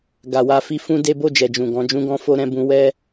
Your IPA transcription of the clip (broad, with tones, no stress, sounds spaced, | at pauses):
ɡ a˨ w a˧ f i˧ f ũ˦ d e˦ b o˦˨ d͡ʒ ɛ˨ d͡ʒ ũ˨ ɡ ɔ̃˨˦ d͡ʒ ũ˦ ɡ ɔ̃˦ f o˦ ɾ ɛ̃˦ b ũ˦ w ɛ˦